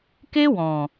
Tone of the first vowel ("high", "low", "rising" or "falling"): high